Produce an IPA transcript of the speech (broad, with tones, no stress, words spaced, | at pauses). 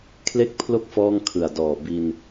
kʰle˥˩k̚pʰlo˥˩k̚ fɔː˥˩ŋkʰɯ˨˩a̯dɔː˨˩ bi˧n